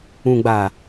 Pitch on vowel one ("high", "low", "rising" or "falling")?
low